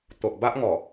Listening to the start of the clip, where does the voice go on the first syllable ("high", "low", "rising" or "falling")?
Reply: low